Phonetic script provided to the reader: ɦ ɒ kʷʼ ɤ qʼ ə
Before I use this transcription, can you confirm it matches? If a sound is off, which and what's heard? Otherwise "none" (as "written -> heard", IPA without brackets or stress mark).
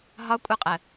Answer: none